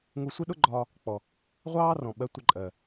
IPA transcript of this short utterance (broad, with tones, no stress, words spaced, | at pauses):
ŋu˧sʷi˦ɗʊ˦ɡ͡ǃɒː˧ | k͡pɔ˨ | ʁʷɑː˦rɔ̃˨ ɓɜ˧tʷɪ˧ǃʼɜ˨